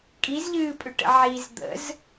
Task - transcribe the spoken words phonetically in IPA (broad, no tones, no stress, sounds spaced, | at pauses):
kʼ i z ʎ ɨː pʼ ʏ ʈ ə̰ ʕ i z d̪ ə̰ z